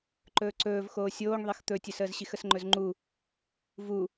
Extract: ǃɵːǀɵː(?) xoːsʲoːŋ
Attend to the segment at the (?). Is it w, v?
v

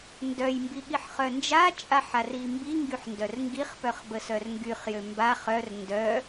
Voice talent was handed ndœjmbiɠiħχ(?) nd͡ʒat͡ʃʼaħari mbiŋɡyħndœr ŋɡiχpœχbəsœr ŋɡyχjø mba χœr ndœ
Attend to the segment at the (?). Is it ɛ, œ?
œ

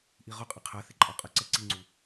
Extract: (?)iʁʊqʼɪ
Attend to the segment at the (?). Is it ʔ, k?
ʔ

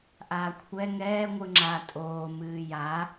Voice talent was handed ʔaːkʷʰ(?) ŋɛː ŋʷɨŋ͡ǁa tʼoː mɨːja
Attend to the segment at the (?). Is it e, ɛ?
ɛ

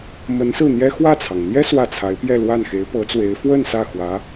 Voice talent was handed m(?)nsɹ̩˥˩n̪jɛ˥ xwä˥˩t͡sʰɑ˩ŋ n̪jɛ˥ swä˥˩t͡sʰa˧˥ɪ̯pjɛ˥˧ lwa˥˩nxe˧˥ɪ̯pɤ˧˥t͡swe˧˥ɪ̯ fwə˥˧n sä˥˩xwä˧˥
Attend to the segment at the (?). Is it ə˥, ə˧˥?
ə˧˥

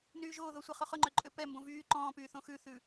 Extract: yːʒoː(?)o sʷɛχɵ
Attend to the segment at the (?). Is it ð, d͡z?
ð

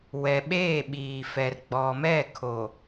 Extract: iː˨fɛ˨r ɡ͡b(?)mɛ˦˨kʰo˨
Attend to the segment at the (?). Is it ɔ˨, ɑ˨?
ɔ˨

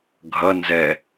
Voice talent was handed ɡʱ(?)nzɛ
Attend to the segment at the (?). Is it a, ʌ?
ʌ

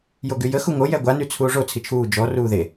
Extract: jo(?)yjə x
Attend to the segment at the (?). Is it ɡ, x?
ɡ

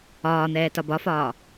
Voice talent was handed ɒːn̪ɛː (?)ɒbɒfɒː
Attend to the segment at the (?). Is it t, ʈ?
t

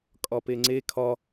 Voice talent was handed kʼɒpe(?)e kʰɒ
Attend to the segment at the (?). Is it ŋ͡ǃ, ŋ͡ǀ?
ŋ͡ǀ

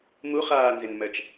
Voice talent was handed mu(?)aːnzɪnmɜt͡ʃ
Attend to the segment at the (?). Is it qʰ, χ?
χ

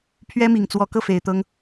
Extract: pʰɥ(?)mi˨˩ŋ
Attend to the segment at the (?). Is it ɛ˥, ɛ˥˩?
ɛ˥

